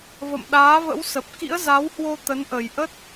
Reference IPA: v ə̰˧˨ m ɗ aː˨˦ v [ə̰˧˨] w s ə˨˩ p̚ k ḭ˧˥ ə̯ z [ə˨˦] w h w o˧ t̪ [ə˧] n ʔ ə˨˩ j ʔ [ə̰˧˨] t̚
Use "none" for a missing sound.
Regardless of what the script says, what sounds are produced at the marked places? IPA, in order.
ə̰˧˥, a˨˦, ə˨˦, ə˦˥

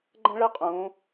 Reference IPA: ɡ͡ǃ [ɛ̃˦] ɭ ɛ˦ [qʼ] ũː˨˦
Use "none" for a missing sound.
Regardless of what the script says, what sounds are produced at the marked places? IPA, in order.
ɛ̃˦, qʼ

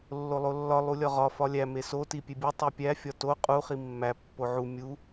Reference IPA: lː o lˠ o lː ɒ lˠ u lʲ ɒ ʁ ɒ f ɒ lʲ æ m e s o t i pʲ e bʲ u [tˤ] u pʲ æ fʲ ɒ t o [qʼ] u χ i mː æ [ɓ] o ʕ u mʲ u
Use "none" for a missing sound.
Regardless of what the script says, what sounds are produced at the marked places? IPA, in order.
tˤ, qʼ, pː

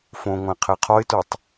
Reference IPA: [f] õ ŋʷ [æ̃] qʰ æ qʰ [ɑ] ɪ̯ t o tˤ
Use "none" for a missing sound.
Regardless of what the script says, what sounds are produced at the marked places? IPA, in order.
f, æ̃, ɒ

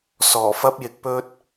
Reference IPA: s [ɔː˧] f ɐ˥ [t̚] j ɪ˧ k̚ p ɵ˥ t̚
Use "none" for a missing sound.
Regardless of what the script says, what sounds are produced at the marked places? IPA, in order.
ɔː˨˩, p̚

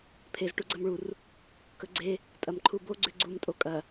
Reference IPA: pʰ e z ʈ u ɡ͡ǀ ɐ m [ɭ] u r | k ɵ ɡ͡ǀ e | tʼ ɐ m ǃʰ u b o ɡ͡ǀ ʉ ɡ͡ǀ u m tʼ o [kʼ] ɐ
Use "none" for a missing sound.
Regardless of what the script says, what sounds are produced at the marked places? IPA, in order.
ɭ, kʼ

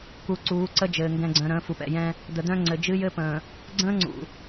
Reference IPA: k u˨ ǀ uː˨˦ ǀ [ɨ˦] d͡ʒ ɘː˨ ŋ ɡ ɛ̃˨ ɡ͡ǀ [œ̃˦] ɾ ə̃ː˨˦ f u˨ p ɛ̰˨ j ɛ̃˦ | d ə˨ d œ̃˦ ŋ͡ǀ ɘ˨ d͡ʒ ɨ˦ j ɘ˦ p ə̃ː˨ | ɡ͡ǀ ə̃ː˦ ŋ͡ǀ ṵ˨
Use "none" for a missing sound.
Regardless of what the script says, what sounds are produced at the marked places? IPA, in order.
ə˦, œ̃˨

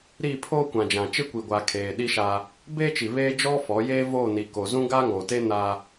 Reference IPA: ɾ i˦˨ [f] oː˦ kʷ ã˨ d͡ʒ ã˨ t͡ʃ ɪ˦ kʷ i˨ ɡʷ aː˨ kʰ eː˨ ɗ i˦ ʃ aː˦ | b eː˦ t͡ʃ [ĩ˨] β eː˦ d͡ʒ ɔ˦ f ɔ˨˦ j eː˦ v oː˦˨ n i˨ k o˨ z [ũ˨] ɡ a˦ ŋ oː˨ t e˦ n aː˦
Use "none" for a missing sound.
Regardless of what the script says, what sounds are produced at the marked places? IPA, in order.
pʰ, i˨, ũ˦

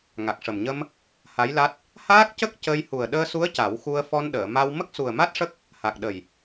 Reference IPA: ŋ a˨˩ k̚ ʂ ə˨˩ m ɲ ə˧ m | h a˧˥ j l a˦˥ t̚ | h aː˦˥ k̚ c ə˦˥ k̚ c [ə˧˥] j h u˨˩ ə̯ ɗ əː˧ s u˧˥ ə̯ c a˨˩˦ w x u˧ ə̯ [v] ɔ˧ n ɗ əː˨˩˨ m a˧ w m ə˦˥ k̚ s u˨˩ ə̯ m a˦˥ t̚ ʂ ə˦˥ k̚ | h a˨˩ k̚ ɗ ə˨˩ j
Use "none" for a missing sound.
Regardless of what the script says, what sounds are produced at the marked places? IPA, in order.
ə˧, f

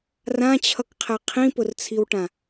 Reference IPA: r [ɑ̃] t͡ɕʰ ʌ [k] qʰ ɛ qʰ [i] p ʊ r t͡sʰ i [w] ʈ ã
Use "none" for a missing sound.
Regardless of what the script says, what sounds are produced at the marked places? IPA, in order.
ã, k, ĩ, w

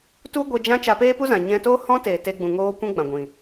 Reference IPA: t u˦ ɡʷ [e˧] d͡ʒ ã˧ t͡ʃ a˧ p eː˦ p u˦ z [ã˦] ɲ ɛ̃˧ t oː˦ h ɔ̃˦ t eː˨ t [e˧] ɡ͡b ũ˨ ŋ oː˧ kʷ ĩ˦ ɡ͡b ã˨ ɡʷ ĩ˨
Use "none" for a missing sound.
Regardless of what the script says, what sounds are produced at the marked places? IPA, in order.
e˧, ã˨, e˧

